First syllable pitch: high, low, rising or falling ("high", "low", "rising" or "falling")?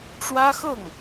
high